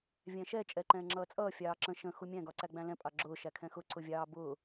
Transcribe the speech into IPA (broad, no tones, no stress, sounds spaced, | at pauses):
vʲ æ̃ ʃ ɛ t͡ʃʼ ɛ ǃ ɛ̃ː ŋ͡ǁ ʌː t͡sʼ ʌː fʲ ɑː ǁ ə̃ ʃ ə̃ x u mʲ æ̃ ɡ ɒ ǀ æ ɡ͡b æ̃ l ɛ̃ pʼ ɑ ɡ͡ǁ ʊː ʃ æ kʰ ɛ̃ x ʊ ǀ ʊ vʲ ɑː b ʊː